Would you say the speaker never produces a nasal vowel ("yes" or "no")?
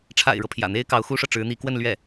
yes